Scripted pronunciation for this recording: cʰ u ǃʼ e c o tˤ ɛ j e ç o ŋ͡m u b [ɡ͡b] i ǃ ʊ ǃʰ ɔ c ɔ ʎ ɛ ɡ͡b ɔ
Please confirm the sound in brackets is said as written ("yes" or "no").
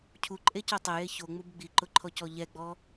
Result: yes